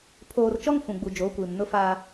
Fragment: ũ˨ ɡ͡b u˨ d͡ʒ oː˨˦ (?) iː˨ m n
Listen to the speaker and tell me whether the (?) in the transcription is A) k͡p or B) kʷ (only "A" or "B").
B